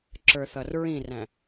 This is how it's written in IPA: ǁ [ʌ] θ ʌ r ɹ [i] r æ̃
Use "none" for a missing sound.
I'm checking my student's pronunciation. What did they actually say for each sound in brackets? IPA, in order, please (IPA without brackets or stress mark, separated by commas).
ə˞, ĩ